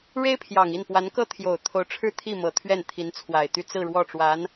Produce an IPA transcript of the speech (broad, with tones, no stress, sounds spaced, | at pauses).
ɻ e˥ ɪ̯ pʰ j ɑ˨˩ ŋ i˥˩ n p w a˧˥ n k ɤ˥ t̪ʰ j o˨˩ ʊ̯ t̪ʰ o˧˥ ʊ̯ ʈ͡ʂʰ ɻ̩˥ t̪ʰ i˥˩ m ɤ˨˩ t̪ʰ ɥ ɛ˥˩ n t̪ʰ i˧˥ n t͡sʰ w a˨˩ ɪ̯ t̪ y˥˧ t͡s ɹ̩˥˧ ɻ w ɔ˥˩ ʈ͡ʂ w a˧˥ n